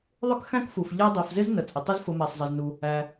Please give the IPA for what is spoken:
ðˤ ʊ˥ k x æ̃˥ k f u˨ f ʎ ɛ˦ dˤ i˨ f z ɪ˥ z n ə˩ t͡sʼ ɪ˩ tˤ ɛ˦ z f ʊ˨ m æ˩ sˤ zˤ ʌ˩ z n u˩ | æ˩

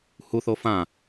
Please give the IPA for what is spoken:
h u θ o f ã

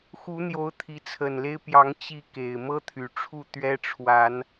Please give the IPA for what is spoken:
x u˨˦ n̪ j o˨˦ ʊ̯ t̪ʰ i˨˦ t͡sʰ ə˨˩ n l e˦ ɪ̯ p j ɑ˨˦ ŋ t͡ɕ i˨˦ k e˨˩ ɪ̯ m ɤ˦ t̪ʰ y˨˩ ʈ͡ʂʰ u˥˨ t̪ ɥ ɛ˦ ʈ͡ʂʰ w a˨˦ n

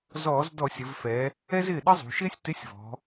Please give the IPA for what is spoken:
z ɔː˧˩˧ z d ɔ˧˩˧ sʲ ə˩˧ v f ɛ˩˧ | ɛ˥ z ɪː˥˩ ɗ ɘ˥ zˤ ṳ˩˧ ʃ ɪː˥ sʲ t ɪ˧˥˧ sʲ v ɔ̤˩˧

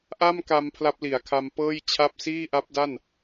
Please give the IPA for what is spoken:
ʔ a˥˩ m k a˧ m pʰ l a˦˥ p̚ l i˩˦ a̯ kʰ a˧ m p ɤː˥˩ j t͡ɕʰ a˥˩ p̚ s iː˥˩ ʔ a˦˥ p̚ d a˥˩ n

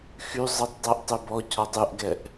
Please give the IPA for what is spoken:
x y zˤ ə tˤ dˤ i ʔ tˤ y b ɔ cʰ ɔ tˤ y ʔ ɡ ɛ ʔ

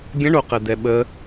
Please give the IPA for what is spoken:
ɡʲ ə̃ ɳ o q ɛ d̪ ɛ ɓ ə

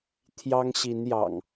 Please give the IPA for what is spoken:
t̪ʰ j ɑ˦ ŋ ɕ i˨˦ n j ɑ̰˨˩ ŋ

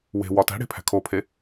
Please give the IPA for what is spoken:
w e̤ w ɒ t æ̤ ɽ e̤ pʰ æ̤ kʰ o pʰ e

